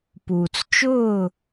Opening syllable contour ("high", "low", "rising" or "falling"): low